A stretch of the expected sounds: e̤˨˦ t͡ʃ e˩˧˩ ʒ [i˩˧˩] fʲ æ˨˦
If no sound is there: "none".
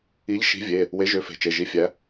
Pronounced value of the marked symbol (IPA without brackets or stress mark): i˨˦